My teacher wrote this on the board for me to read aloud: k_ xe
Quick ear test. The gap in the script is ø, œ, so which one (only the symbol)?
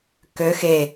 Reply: ø